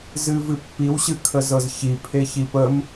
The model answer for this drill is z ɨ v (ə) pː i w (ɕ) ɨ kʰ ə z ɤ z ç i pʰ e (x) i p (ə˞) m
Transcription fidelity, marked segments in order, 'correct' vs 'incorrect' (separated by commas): incorrect, correct, incorrect, incorrect